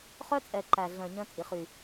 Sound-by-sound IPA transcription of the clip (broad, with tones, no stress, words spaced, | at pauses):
χœ˦t͡sʼɛ˨ ǃæ˨ɮœ̃˨ ɲœ̃˦t͡sʼi˨ χy˨